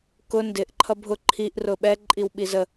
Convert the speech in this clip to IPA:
k ʊ n d ɪ ʔ ǃʰ ʌ bʱ ʊ ǃʰ i ʔ r ʊ ɓ ɛ ǃʼ i w ɓ i z ə

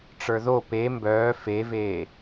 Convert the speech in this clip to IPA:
ʈ͡ʂ ə˞ ð o p e m b œː f e v eː

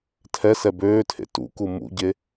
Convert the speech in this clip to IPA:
tʰ ɛ s ɛ b øː tʰ ḛ t ṵ k u m ṵ ɟ e

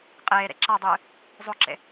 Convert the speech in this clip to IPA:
qʼ eː ɾ ḛ ǁ a dˤ ɨː | zˤ o ǁ ḛ

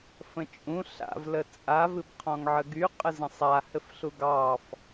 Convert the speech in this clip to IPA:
f ə̃ t͡ʃʼ ũ ɬ a̰ v l ə t͡sʼ a v ɨ b qʰ ɔ̃ ŋ ʕ ə ɡ y qʼ ə z ə̃ sˤ a h ɘ f ɬ u ɡ ɑ f

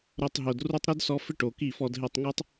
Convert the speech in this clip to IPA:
ɾ o˧ tˤ ɦ o˨ d r u˧ tˤ ɾ ʊ˦ d s ɔ˧ f ɪ˦ ʈ o˨ k i˦˨ f ɔ˧ d ɦ e˧ tˤ ŋ u˦ tˤ

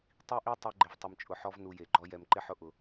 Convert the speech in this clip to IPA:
tˤ i˦ ʔ i˦ tˤ i˧ ɡ͡ǃ ɪ˨ v tˤ ɪ˨ m t͡ʃʼ ʊ˨ ħ ɔ˧ v n u˧ j e˨ ɡ͡ǃ ɔ˦ j ɛ˨ m ǃ ɪ˦ ħ ʊ˧ ʔ ʊ˨

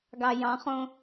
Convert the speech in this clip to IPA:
ɡ ɑ j ɑ̃ χ õ

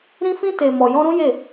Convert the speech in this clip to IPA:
ɾ ĩ˧ f ĩ˧ t e˨ m ɔ˨ j ɔ̃˧ ɾ ũ˦ j e˦˨

